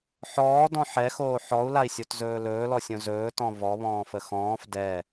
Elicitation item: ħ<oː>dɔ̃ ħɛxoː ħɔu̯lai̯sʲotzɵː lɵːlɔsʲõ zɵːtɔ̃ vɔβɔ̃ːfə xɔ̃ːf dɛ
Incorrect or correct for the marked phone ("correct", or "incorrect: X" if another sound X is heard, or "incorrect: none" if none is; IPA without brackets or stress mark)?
incorrect: ɔː